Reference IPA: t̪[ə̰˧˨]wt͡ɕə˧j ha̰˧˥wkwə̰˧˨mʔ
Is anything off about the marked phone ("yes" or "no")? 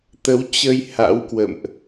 yes